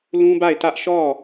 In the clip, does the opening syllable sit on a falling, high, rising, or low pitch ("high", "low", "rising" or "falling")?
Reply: high